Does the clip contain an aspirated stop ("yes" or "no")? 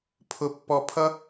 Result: yes